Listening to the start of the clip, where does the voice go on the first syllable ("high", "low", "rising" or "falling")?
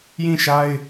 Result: falling